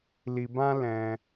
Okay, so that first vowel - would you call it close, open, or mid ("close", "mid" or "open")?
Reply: close